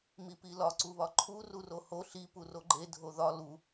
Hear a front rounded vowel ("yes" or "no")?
no